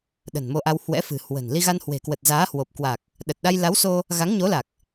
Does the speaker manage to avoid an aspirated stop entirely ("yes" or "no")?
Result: yes